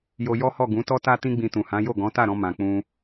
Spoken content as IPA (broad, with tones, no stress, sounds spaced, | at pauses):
j o˧ j ɔ˦ h ɔ˦˨ ɡ ũ˨˦ t ɔ˦ t a˦ t ĩ˦ ɡ͡b ĩ˧ t ũ˨ h ã˨˦ j o˦˨ ɡ ɔ̃˨˦ t a˦˨ ɾ ɔ̃˧ m ã˨ k͡p ũ˧